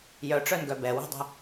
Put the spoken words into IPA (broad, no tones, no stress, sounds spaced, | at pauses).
j œ ʈ͡ʂ œ n ɡ œ b ɛ w ɛ̤ dˤ ə̤